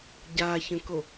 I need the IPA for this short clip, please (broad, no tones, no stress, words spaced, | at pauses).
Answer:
ɟa çə̃ko